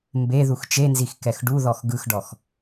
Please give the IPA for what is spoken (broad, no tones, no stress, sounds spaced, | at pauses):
m b e ð u x t͡ʃ e n z i x k ɛ x ɖ u ð ɔ x ɡ ɯ x ɖ ɔ x